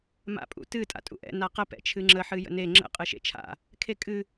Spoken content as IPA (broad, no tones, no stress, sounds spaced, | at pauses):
m a̰ pʼ ṵ t ɨ tʼ a̰ tʼ ṵ ʔ ɛ̰ n a q ə p ɛ̰ t͡ʃʰ ɨ ŋ͡ǁ ə ħ ɨ j ə̰ n e ŋ͡ǁ ə̰ qʼ ɨ ʃ ḛ t͡ʃʰ a̰ | kʰ e kʼ ɨ